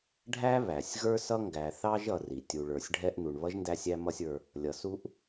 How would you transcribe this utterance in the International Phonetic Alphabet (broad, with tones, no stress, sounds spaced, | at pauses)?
ɖʱ æ˥ β æ˩ sʲ ɣ ə˞˥ s ʌ˥ ŋ ɡ æ˨ θ ɑ˥ ʒ ʌ˨ r i˩ tʲ u˨ ɭ ə˞˨ sʲ ɖʱ ɛ˦ ʔ n u˨ ɳ β ʌ˥ ʒ n d æ˥ sʲ æ˥ m ʌ˥ sʲ ə˞˦ | lʲ ʌ˩ s u˦ ʔ